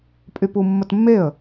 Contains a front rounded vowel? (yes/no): yes